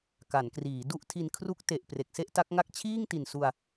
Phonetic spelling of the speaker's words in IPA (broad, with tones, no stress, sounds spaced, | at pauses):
k a˩˦ n k r iː˩˦ d u˥˩ ʔ tʰ i˧ n kʰ r u˦˥ k̚ t e˨˩ ʔ p r e˨˩ k̚ s e˥˩ ʔ t a˦˥ k̚ ŋ a˥˩ k̚ t͡ɕʰ iː˥˩ ŋ t i˨˩ n s u˧ a̯